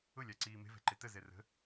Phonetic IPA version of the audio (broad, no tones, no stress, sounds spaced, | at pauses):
ʊ lʲ a ǀ iː m e̤ v ɛ̤ ǃ e t ə z ɛ r ə̤